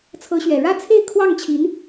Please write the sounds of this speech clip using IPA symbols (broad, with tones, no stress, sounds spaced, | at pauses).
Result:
t͡sʰ ɤ˧˥ ɕ ɥ ɛ˨˩ ɻ ä˥˧ t͡sʰ e˥˧ ɪ̯ kʰ w ɑ˥˩ ŋ t͡ɕʰ i˧˥ n